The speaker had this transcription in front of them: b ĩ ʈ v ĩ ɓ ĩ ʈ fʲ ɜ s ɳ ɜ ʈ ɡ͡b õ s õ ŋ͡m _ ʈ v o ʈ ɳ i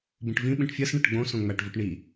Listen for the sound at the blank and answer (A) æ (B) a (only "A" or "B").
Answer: A